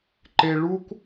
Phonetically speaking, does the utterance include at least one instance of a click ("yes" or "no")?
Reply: yes